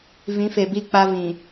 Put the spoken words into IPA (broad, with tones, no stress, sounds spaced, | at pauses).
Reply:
v ĩ˨˦ f e˨ b i˦˨ k͡p a˦ v ĩ˨